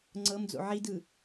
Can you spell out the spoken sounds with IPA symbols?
ŋ͡ǀ ɤ m d͡z o̰ ʕ i d ɯ

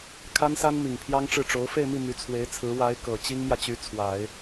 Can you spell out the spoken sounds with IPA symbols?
kʰ a˥ n s a˥ n m i˨˩ ŋ pʰ j ɑ˥ ŋ ʈ͡ʂ ɻ̩˥˩ ʈ͡ʂ o˧˥ ʊ̯ f e˥˧ ɪ̯ m i˥˩ m y˧˥ t͡sʰ w e˧˥ ɪ̯ t͡sʰ ɹ̩˧˥ w a˧˥ ɪ̯ k ɤ˨˩ t͡ɕ i˥ ŋ m j ä˨ t͡ɕ y˧˥ t͡sʰ w a˨˩˦ ɪ̯

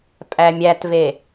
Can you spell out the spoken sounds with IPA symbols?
pʼ æ mʲ æ t v e

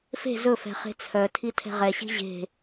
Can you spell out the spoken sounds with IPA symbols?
f e̤ z ɵ f ɛ̤ χ e̤ t͡sʰ œ tʰ i tʰ ɛ̤ ʁ ɛ ɕ i̤ ʑ e̤

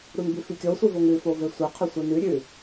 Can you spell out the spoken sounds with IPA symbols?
ɾ u n b ʉ f i kʲ o sʷ ɨ v o ŋ ʉ f o v e sʷ ɐ qʰ ɵ sʷ i n ʉ ɾʲ ʉ

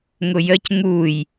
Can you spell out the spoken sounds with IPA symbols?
ŋ ʊ j ə c ŋ u j

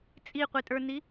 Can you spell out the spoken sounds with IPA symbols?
t͡sʼ i qʷ i tʼ ə˞ n i

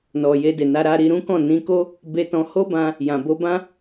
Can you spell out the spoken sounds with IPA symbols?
n ɔ˨ j e˧ d e˨ n a˧ ɾ a˧ ɾ i˧ ɾ ũ˦ k ɔ̃˦˨ n ĩ˧ k o˦ | b e˧ t ɔ̃˧ h o˦ b ã˧ | j ã˨ b o˧ b ã˦

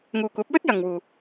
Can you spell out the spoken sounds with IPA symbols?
ŋ uː˨ kʷ ɐ˨˥ p̚ w ɵ˥ t̚ j ɐ˨ ŋ w uː˨

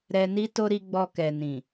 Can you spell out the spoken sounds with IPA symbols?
ɾ ɛ˧ n i˦ t o˦ ɾ i˧ ɡ͡b ɔ˧ k ɛ˨ n ĩ˨

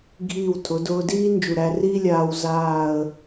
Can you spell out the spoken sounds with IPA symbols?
ɡʱ iː˧˩ w tʰ ʊ˩˧ d ʊː˧ d iː˥ n d͡ʒ u˧˩ ɾ æ˥˧ r iː˥ lʲ aː˥ w z aː˥˧ ə̯

